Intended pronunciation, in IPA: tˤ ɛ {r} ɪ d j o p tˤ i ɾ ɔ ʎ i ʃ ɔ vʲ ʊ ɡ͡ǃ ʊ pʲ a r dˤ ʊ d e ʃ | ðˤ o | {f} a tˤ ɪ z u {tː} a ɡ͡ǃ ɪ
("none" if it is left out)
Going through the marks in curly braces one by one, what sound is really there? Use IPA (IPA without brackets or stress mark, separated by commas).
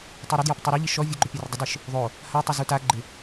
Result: ɾ, h, t